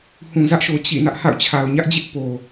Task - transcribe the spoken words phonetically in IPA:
h ũ˨ z ä˦ ʔ ʃ o˨ t͡ɕ ḭ˦˨ n ä˦ ʔ h a̰˦˨ ʊ̯ t͡ɕʰ a˨ ʊ̯ ɲ ä˦ ʔ d͡ʑ ɪ˦ ʔ p o˨

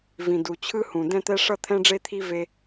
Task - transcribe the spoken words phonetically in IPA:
v ĩ˩ d u˩ t͡ɕʰ ɯ˥ h ũ˩ d ɛ̃˥ t̪ ɛ˥ ʂ ʌ˥ t̪ʰ ɛ̃˥ ɖ͡ʐ e˥ t̪ʰ i˥ v e˥

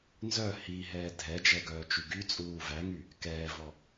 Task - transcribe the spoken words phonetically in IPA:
n z œ h i ɦ ɛː dʱ ɛ d͡ʒ ɛ ɡ œː t͡ʃ y ɡ y t͡sʼ uː v æ ŋ y | k ɛː v ɔ

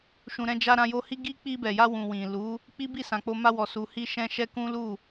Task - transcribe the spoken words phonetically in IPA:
ʃ ũ˨ ɾ ɛ̃˧ d͡ʒ a˧ ɾ ã˧ j o˧ h i˦ ɡ i˦ k͡p i˧ b ɛ˨ j a˧ w ũ˨ w ĩ˨ l u˨˦ | k͡p i˦ b i˦˨ s ã˨ k͡p o˧ m a˧ w ɔ˨ s u˨ h i˧ ʃ ɛ̃˧ ʃ ɛ˦ k ũ˦ l u˦˨

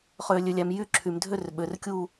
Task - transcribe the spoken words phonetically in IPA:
χ øː˩ lʲ ø˩ lʲ æ˩ m j y˦˨ ǁʰ y˩ m dʱ ø˦˨ r ɓ ø˩ r kʲ u˦˨

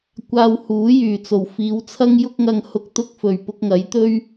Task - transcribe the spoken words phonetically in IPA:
kʷ aː˧ w h uː˨˥ j yː˨˩ t͡s o˨˩ w f iː˨˧ w t͡sʰ ɐ˥ ŋ j ʊ˧ k̚ ŋ ɐ˨ ŋ h ʊ˨ k̚ t̪ ʊ˧ k̚ f ɵ˨˩ ɥ p ʊ˧ k̚ ŋ ɐ˨˥ j t̪ ɵ˥ ɥ

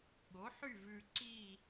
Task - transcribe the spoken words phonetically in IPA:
ɠ o˩˥ ħ y˥˨ v ʉː˨ ǀ i˥˨

